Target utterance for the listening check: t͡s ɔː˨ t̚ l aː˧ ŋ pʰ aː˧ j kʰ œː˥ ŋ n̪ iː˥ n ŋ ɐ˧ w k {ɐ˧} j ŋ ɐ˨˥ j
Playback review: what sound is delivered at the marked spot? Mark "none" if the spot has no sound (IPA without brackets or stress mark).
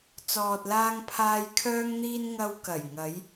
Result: ɐ˨˩